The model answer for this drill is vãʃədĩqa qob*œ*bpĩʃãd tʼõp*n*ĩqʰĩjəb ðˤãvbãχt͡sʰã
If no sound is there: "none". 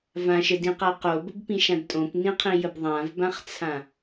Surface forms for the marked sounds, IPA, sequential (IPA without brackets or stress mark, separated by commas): ə, n